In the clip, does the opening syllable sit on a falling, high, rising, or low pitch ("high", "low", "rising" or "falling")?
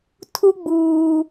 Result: high